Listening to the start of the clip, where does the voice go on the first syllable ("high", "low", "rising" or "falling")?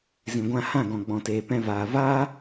low